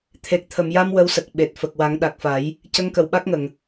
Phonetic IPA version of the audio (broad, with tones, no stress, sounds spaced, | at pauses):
t̪ʰ e˨˩ k̚ t̪ʰ ə˨˩˨ m j a˧ m w ə˧˥ w s ə˨˩ k̚ ɓ e˨˩ t̚ f ə˨˩ k̚ w a˨˩˦ ŋ ɗ a˨˩ k̚ f a˨˩˦ j | c ə˧˥ ŋ k ə˨˩ w ɓ a˦˥ k̚ ŋ ə˨˩˨ ŋ